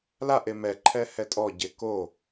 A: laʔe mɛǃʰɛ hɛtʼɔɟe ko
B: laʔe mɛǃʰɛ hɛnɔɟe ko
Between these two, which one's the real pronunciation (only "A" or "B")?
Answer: A